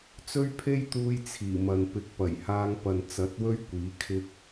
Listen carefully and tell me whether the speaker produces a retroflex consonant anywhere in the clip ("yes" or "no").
no